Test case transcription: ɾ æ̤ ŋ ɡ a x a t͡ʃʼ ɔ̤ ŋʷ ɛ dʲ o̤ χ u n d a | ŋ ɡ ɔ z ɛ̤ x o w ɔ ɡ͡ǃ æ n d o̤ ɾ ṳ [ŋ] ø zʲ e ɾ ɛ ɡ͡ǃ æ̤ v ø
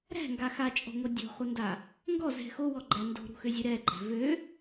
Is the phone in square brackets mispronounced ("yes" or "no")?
yes